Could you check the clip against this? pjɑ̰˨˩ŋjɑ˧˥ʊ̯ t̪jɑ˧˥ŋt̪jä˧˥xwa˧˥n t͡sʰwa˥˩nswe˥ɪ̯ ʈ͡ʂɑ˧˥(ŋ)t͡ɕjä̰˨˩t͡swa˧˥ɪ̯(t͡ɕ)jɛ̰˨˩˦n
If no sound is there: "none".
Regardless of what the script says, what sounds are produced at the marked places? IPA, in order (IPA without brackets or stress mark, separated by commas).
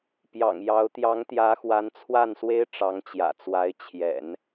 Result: ŋ, t͡ɕʰ